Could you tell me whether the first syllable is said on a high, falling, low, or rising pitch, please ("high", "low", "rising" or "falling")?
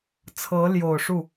rising